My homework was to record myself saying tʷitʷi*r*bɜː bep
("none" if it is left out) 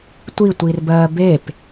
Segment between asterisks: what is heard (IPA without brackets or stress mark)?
r